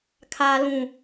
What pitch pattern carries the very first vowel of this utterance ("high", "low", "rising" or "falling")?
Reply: low